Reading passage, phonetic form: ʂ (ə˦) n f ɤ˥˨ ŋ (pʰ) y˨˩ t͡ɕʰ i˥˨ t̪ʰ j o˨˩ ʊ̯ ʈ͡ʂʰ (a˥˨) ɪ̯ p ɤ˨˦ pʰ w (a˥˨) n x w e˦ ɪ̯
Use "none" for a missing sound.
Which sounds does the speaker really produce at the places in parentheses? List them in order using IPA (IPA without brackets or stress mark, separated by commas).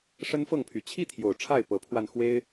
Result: ə˦, pʰ, a˥˨, a˧